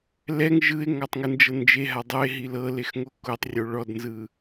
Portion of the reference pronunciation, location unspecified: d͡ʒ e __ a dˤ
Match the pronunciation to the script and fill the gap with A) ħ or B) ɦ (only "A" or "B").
B